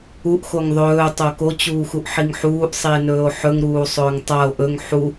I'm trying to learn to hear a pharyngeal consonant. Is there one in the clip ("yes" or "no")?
yes